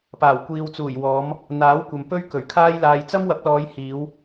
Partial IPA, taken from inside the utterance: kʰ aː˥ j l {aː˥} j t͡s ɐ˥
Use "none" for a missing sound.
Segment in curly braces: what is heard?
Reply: aː˧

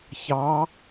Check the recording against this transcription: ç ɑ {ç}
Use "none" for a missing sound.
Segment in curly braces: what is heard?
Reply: none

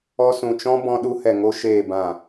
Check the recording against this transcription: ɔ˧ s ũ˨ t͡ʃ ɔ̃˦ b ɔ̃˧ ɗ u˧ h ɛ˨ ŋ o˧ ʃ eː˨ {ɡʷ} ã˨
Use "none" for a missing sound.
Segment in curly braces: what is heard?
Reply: b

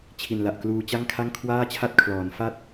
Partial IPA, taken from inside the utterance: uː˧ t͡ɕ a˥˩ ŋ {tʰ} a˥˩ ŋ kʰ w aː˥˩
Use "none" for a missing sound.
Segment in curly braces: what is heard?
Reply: kʰ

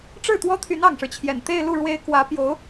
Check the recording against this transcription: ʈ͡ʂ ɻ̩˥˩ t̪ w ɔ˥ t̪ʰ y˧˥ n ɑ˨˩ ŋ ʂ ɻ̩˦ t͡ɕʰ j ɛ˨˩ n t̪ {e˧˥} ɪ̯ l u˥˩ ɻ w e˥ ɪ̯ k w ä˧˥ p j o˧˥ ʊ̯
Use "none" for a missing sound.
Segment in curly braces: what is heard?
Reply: e˥˧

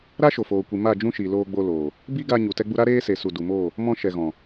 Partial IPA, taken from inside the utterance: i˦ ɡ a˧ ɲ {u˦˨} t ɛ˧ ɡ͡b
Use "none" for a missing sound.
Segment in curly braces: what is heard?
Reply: u˨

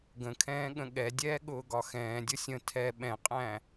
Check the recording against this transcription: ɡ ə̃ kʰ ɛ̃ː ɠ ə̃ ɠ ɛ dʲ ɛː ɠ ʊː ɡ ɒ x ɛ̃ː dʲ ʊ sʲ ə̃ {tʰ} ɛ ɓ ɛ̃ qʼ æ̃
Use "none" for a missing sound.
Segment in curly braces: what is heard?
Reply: tʰ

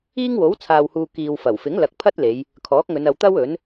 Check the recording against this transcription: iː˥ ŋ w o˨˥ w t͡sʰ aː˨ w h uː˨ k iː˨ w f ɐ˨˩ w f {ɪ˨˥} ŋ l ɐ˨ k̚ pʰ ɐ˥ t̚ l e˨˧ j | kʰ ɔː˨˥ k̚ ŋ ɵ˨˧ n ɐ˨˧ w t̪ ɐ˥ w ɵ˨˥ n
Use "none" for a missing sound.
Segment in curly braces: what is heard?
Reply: ɪ˨˥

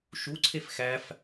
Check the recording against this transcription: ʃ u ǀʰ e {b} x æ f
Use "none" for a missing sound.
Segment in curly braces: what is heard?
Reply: f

